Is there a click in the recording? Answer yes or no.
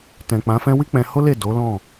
no